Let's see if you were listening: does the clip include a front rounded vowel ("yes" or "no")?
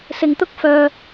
yes